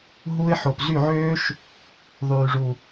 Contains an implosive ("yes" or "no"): no